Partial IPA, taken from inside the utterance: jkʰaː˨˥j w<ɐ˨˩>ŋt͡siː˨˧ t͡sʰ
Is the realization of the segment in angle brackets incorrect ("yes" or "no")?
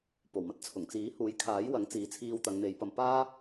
yes